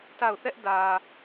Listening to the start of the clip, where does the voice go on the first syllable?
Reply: falling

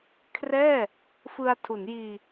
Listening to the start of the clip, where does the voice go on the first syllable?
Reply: falling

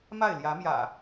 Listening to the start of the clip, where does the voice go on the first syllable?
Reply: falling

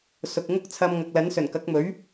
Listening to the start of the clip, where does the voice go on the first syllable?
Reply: low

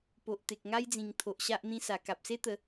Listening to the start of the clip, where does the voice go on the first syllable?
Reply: low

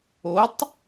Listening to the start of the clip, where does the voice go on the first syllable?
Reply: rising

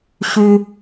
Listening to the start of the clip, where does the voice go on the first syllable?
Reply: high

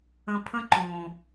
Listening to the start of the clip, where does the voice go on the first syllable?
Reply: low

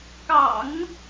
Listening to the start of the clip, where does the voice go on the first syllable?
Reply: low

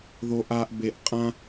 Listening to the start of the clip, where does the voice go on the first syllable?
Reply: low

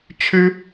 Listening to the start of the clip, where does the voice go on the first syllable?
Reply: high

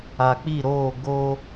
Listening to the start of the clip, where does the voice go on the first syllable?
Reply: low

